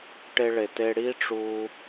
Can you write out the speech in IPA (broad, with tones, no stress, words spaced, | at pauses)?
ʈe˦ɭe˨te˦ ɽi˦ʈ͡ʂu˧